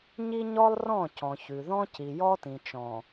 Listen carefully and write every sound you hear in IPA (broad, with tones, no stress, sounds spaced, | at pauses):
ɲ i˦ ɲ ɔ˦ lˠ r ɔ̃˦˨ c ɔ̃˨ ç ʉ˨ ð ɔ̃˦ c i˨ j ɔ˦ t ĩ˨ t͡ʃ ɔ̃˨